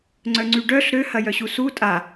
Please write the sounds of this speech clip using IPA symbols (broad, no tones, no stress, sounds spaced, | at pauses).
ŋ͡ǀ œ ŋ͡ǀ y ɖ œ ɬ ɾ ø h ɐ j œ ɕ u s u tʼ a